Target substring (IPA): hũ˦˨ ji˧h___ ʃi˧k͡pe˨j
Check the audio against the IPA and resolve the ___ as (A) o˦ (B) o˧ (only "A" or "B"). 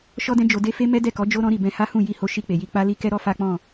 B